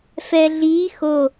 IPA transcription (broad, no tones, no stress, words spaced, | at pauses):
fɛ ɮiː xo